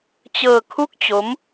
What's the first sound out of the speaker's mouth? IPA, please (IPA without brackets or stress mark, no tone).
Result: t͡ɕ